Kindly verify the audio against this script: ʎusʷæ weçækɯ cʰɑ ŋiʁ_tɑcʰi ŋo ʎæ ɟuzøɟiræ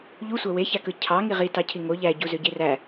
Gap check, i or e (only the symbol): i